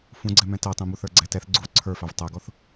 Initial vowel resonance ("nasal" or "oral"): nasal